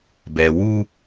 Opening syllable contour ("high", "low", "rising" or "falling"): low